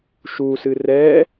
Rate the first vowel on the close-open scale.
close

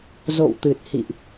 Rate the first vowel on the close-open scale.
mid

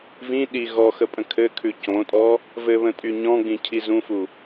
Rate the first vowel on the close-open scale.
close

